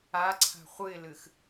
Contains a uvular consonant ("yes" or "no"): yes